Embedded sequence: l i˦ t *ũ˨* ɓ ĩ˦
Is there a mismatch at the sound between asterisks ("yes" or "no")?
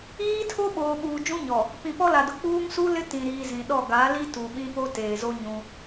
yes